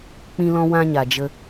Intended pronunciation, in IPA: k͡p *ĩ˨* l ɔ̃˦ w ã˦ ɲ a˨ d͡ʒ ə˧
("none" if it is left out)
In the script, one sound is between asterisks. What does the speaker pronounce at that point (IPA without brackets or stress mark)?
ĩ˦